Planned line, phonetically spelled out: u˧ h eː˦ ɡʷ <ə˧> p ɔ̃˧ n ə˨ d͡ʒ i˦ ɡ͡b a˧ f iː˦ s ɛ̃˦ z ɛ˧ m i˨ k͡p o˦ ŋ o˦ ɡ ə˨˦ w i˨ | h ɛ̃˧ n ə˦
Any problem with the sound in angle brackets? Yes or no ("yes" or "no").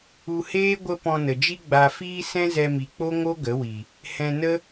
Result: yes